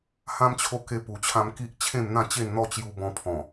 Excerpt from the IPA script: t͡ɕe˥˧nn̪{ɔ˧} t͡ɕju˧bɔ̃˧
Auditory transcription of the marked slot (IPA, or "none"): ɔ˥˧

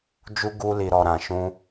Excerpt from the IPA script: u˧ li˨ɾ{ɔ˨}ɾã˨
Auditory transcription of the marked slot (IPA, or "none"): ɔ˨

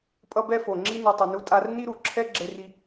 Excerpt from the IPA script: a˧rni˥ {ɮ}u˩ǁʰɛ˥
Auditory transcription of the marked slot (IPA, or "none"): ɾ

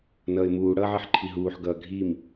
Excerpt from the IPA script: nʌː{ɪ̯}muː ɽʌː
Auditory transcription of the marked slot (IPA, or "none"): ɪ̯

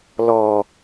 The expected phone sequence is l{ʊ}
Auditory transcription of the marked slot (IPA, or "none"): ɔ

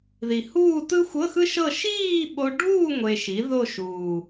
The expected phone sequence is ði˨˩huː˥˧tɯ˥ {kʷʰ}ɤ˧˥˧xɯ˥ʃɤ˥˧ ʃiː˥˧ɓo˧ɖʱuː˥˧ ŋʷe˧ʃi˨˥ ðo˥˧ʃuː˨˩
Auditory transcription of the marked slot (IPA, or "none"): xʷ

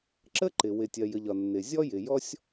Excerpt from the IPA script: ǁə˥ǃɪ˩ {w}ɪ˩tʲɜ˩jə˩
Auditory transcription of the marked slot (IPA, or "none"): w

